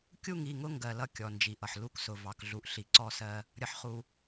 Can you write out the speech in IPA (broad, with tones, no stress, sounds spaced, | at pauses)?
kʲ u˦˨ ŋ i˦˨ ŋ ʊ˦ ŋ ɡ ɜ˨ l ʌ˦ kʲ ɔ˨ n d͡ʒ i˨ ʔ ʌ˨ ħ l u˦ k s ʊ˨ v ɑ˨ k ɮ u˨ ʔ ɬ i˨ ǀ ɔ˦˨ s ɜ˦ | ɾʲ ʌ˨ ħ χ u˨